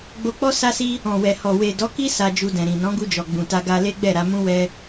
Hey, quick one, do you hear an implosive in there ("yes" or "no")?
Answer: no